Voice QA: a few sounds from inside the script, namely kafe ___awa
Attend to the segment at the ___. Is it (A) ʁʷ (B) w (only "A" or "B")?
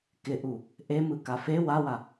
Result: B